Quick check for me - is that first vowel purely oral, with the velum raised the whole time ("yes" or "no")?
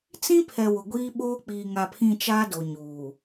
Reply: no